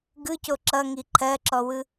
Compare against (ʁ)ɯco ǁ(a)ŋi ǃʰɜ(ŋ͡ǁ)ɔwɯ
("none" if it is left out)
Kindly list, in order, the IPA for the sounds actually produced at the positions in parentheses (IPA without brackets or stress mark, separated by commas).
ɡ, ʌ, ǁ